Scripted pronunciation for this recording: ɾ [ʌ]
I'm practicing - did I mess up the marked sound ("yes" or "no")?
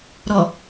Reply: yes